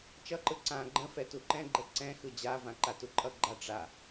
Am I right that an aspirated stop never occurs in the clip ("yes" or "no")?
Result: yes